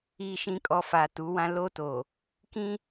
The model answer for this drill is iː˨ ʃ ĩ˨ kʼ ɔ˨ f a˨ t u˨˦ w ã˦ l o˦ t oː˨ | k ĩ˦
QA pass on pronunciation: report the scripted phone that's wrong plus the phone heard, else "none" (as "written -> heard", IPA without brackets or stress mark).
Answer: none